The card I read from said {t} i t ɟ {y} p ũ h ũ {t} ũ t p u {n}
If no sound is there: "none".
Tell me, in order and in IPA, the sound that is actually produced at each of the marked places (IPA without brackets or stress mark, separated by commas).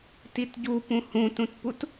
t, u, t, t